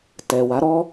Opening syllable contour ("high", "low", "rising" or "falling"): low